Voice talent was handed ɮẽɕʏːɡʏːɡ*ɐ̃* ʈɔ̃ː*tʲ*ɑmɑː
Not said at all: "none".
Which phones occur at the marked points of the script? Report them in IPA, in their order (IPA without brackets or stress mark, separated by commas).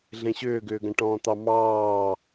ɐ̃, t̪